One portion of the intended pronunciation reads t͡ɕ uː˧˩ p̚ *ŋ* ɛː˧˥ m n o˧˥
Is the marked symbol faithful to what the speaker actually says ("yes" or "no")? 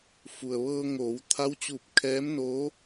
no